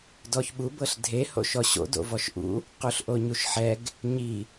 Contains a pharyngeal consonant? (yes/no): yes